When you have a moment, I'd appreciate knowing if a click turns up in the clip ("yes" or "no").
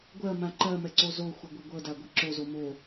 yes